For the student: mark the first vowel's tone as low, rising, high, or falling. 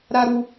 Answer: low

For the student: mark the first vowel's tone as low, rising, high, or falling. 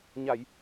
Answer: low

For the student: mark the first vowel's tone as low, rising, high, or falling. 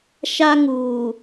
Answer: high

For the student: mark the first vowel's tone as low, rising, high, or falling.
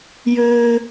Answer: high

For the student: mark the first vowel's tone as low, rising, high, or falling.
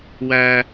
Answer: high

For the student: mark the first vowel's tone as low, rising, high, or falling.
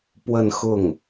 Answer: falling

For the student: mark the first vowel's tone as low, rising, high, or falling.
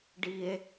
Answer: high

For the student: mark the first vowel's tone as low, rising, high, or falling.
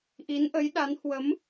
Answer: rising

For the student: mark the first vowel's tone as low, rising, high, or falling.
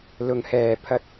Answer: low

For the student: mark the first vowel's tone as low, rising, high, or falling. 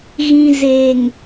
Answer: low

